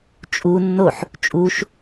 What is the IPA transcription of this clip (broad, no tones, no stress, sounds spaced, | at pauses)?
t͡ʃʼ u nː o ħ | t͡ʃʼ u ʃ